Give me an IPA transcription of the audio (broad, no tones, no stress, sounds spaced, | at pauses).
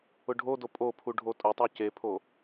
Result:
ʊ ɖʱ o d o pʼ o pʰ u ɖʱ o tʼ ʊ tˤ u c e pʰ o